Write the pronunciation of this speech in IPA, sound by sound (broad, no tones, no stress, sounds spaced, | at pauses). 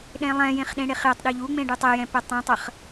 ɗ ẽ lˠ ɛ̃ j ẽ χ ɗ ẽ ɽ e χ j ə tˤ ɗ ø ʎ u ŋ͡m ẽ ɖ u tˤ e j ɛ̃ p ɛ tˤ ɛ̃ tˤ ə χ